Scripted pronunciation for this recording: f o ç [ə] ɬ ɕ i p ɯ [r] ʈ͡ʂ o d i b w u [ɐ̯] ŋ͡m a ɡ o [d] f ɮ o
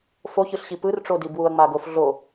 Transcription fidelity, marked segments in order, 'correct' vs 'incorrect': incorrect, correct, correct, incorrect

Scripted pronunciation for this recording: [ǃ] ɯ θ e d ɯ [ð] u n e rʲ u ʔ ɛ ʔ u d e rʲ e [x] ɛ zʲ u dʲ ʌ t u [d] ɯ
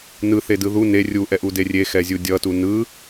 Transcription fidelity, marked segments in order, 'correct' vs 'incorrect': incorrect, correct, correct, incorrect

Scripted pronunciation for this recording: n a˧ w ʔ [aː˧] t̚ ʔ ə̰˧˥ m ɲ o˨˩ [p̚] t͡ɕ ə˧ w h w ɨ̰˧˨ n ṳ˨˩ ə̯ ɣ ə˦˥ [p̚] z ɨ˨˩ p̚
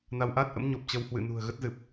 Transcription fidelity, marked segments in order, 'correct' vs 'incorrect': incorrect, correct, incorrect

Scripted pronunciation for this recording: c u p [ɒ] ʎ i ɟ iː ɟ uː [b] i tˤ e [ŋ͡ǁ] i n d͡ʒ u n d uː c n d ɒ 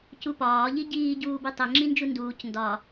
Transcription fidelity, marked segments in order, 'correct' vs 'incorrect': incorrect, correct, correct

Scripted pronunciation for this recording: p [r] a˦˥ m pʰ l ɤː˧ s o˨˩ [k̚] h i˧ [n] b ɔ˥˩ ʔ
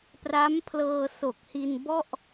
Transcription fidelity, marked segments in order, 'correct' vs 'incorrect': correct, correct, correct

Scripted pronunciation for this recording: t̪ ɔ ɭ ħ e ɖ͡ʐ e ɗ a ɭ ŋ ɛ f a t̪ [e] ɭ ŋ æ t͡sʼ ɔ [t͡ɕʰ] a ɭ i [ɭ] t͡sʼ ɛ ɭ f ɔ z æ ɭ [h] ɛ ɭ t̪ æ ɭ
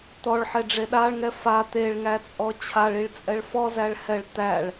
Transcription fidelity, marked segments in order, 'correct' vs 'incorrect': correct, correct, correct, correct

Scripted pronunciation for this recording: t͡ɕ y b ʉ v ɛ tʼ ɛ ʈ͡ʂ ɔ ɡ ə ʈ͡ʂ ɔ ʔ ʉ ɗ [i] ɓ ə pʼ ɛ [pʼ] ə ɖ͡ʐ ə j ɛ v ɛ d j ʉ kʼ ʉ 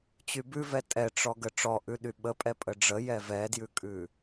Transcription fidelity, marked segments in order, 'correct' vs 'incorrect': incorrect, correct

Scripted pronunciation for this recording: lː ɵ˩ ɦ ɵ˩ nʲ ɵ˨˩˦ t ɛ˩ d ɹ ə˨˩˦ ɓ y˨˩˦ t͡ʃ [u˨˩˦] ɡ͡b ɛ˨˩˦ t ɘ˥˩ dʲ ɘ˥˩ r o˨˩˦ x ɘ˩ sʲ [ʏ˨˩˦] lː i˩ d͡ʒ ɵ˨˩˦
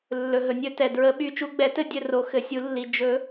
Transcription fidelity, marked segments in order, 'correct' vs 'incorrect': correct, incorrect

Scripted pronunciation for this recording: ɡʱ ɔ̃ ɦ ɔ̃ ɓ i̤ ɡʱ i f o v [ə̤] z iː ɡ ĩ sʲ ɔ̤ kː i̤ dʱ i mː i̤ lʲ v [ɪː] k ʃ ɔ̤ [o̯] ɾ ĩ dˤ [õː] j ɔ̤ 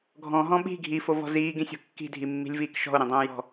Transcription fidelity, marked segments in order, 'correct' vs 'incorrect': incorrect, incorrect, correct, correct

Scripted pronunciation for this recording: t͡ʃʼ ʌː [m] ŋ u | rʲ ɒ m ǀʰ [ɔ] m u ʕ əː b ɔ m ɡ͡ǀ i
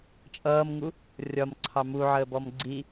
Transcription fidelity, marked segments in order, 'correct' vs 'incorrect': correct, incorrect

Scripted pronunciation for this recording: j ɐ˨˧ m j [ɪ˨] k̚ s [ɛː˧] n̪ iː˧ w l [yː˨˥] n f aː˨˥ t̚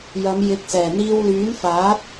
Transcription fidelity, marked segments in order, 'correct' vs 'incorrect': incorrect, incorrect, correct

